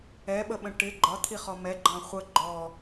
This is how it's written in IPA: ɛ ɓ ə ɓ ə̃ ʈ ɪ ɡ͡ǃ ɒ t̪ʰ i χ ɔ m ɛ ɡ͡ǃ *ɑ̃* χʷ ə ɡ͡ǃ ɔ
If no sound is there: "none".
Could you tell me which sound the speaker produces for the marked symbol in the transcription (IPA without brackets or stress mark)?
ɑ̃